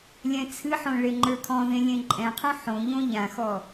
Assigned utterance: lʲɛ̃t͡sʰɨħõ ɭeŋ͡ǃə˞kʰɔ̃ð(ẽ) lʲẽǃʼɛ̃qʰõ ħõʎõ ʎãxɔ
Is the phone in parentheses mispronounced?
no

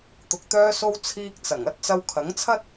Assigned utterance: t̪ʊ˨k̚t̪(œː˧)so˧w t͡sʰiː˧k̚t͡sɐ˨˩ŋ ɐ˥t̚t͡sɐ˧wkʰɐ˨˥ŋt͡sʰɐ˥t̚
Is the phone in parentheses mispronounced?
no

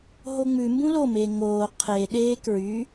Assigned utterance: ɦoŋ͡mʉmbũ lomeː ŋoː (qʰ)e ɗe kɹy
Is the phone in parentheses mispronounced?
no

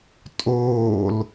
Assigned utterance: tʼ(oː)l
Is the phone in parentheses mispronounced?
no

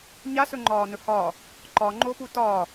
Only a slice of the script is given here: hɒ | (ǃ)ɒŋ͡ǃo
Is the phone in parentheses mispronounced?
no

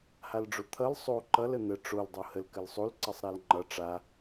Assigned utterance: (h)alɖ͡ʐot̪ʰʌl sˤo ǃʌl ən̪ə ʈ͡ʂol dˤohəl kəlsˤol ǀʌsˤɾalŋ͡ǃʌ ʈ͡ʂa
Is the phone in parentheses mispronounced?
no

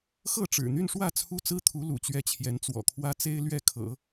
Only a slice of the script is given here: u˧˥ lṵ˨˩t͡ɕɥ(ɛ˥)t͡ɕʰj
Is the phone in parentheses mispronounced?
yes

